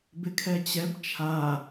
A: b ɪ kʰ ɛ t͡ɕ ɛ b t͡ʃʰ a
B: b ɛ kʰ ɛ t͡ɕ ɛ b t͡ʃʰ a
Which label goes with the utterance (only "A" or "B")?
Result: A